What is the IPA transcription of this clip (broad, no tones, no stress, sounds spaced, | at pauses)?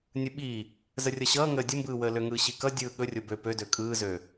nʲ ɯ ɓ i | z ə rʲ ʌ ɕ ʌː ŋ əː dʲ ə m b ɯː w əː l ø ŋ ɯː ɕ i k ʌ dʲ ɯː ɠ ɵ rʲ o b ø p ø d ø kʼ ɯː z ø